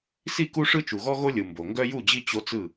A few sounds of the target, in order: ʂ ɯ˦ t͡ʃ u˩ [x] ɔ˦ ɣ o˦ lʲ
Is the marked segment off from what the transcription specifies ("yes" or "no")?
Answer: yes